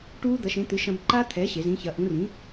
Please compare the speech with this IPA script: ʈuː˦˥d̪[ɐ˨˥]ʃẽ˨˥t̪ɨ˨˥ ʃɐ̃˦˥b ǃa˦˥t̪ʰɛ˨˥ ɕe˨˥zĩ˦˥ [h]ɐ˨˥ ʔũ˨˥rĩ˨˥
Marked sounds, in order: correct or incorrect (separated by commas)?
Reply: correct, incorrect